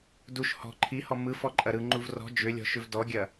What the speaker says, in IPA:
d u ʃ h ɔ̤ ǃʰ i h ɔ m ɯ f ɔ ǃʼ ɐ ɾ ɯ ŋ͡ǃ u v r ɔ̤ d͡ʒ ʏ lʲ ɔ̤ ʃ ʏ v d ɔ ɡʲ ɐ

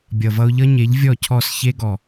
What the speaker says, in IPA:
bʲ ʌ˨ v ʌ˧ ʊ̯ ʎ ʌ˦ ɲ e˨˦ ʎ vʲ ɔ˦˨ cʰ ɔ˦˨ s ç e˦ ɡ ɔ˨

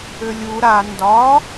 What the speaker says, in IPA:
ʏ lʲ u ɾ a n d ɒ

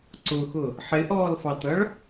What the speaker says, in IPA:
ǀ ʊ x ʊ | ħ ɪ ʔ ɔː l f ɑ t ʌ ɭ

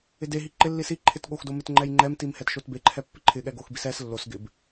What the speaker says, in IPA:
ɪ d e ɦ i ǃ ɪ lː i s i ǃʰ ɪ t ɠ o x d o m ɪ t ŋ͡ǃ ɛ j ŋ͡ǃ ɛ m t i m h ɛ t ʃ o t b e ǃʰ ɛ pː ɪ ǃʰ ɪ ɠ ɛ ɡ o x b i s ɛ s lː o s ɡ ɪ b

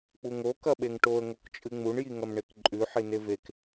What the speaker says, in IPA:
k͡p u ŋ o k ɐ ɓ e ŋ ʈ o ə̯ ŋ o k t͡ʃʼ ɨ ŋ͡m u ɳ j i ŋ ɐ m ɳ e k ǃʼ ʉ ħ i n e v e k

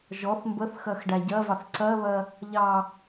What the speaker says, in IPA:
ʒ ɔ θ m b ə θ x ɜ x ɖ æ ɟ ɜ v ɑ θ ǀ ɜ β ɜ | ʎ ɑ

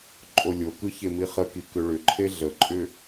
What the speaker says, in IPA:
ǃʼ o lʲ o k ɯ ç e m i χ ə k i k ʏ ɭ ʏ ǃʰ e ɮ ə ǃʼ ʏ

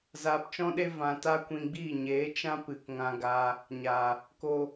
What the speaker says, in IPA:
z aː˧ p t͡ʃ ɔ̃˦ ɗ e˦ v ã˧ t a˦ kʷ ĩ˧ ɡ͡b iː˦˨ ɲ eː˨˦ t͡ʃ ã˦ p ɨ˨ k ŋ ã˧ ɡ aː˧ | ɲ aː˨ | k oː˧

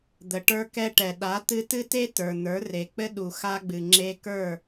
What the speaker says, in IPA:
d̪ ə˨ ʈ ə˞˧ k ɛ˧ ʈ ɛ˨ ɗ a˨˦ t̪ ɨ˧ t ɨ˦ t e˦ t ə˞˨ n̪ ə˞˨˦ r e˨ k͡p ɘ˦ ɗ u˨ x a˧ ɡ͡b ɨ˨ ŋ͡ǁ e˧ k ə˞˦˨

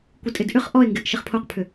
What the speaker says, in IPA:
kʷ ɪ tʼ ɪ d ʔ ʏ χ ʔ ɔ e̯ ŋ ɡ ɪ ʔ ʃ ɪ χ pʰ o q pʰ ʏ

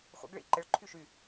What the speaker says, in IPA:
χʷ ə̰ ɡ ɭ ḭ ǃ ɪ ɭ ǃʰ y ʃ y

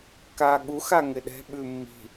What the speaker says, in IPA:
k aː ɠ u x a ŋ ɪ ɗ ɛ̤ ɓ ʉ mː i̤

